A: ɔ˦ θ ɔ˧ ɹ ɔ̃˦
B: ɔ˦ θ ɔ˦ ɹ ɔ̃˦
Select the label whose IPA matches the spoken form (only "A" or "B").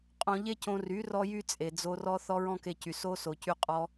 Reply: B